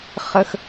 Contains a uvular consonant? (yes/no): yes